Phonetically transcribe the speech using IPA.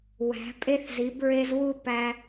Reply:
wæ̤˨˥pʼe˥θzi˨˥bɹe˥z wu˥ pæ˥

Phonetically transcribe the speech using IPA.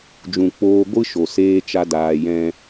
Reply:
d͡ʒũ˨k͡poː˧ɡʷɨ˦ʃo˨ seː˦t͡ʃa˦daː˧ jɛ̃˦

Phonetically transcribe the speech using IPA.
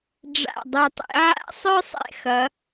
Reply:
ɖ͡ʐa̰˧˩dˤʌ˧˩tˤḭ˩˧ ʕa̰˧˥sˤə˞˥sˤɛ̰˧˩ xʌ˩˧

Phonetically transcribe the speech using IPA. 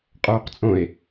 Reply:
qʼoːqt͡sʼõe̯

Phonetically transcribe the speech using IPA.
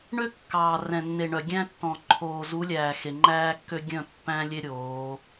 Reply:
ɳø˦kːɑː˨rɛ̃˨nːe˨ ɳœ˨ɡʲæ̃˦ tːɔ̃˨ ǃʰoː˨zu˨˦lʲæː˨ xe˨ŋ͡ǃæː˦kːø˦ ɡʲœ̃˦˨pːæ̃˦lʲe˦ ɾʲoː˨˦

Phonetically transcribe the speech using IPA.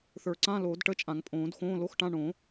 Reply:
θə˞˨˩˦ǀã˧˥˧ loː˨˩˦dʈə˧˥˧t͡ʃʼã˨˩˦ŋ pʼõː˨˩˦dxõː˧˥˧lo˧˥˧xʈã˧˥˧ ɳõ˨˩˦

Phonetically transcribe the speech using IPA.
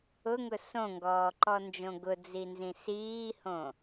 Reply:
ʊŋʊ sõŋɡɔːǃɔnd͡ʒõ ɡʊd͡zinzĩ siːhõ

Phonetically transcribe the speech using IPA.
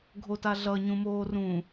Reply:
ɡʱotaɮʌ ɲũmoːrũː

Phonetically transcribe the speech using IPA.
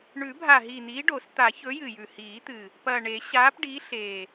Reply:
ɳʉ˨˩˦bʱa˨˩ɦiː˨˩ n̪iː˨˥ɖo˨˩˦s t̪a˨˩˦ çɵ˨˥jɨ˨˩jʉ˨˩ hiː˨˩˦t̪ɨ˨˩ | pɐː˨˩ɳe˨˩˦ɕaː˨˥p ɖi˨˥ɬe˨˩

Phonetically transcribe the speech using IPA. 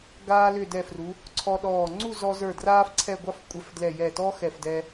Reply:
ɡaː˧lʏ˧˩dɛ˧˩fru˩˧ | ǀʰɔ˧ɗɔː˧˩ ŋ͡ǀu˥˧zɔ˧zə˞˧˩ draː˥fǀʰɛ˥˧ɡʷɑ˥f kʷʼɛ˧˩fdlɛ˧˩ jɛ˧˩tɔ˥xɛ˧˩fdɛ˧

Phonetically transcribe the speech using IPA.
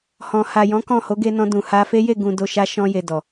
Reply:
hɔ̃˨ha˨jɔ̃˨˦ kɔ̃˦˨ho˨˦ ɡe˧nɔ̃˧ dũ˨ha˧fe˦ je˦˨ ɡũ˨ do˧ʃa˦ ʃɔ̃˧je˨ dɔ˨

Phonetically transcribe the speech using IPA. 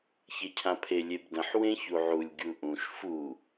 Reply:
çecʰãpʰe lʲebdə̃ħ wẽçuʕulʲ ɡʲuʔũʃ fu

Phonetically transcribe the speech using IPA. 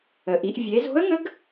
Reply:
ə˩ ʔi˩˧ʔ vʲe˩˧zo̤˧˥ə̯ŋə˧˥ɡ

